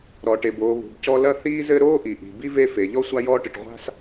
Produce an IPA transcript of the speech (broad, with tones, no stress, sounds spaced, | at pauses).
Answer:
ɾ ɔ˩ ʈ e˩ b oː˨ β ṳ˩ b c ɔ˦ l ɐ˦ θ iː˦ z ɘ˦ ɾ oː˥ ʔ i˩ ʔ i̤˩ b i˥ v e˦ f e˩ ʎ ɔ˥ sʷ a˦ j ɔː˦ ʈ ɨ˩ ʈ ʁʷ a̤˥ s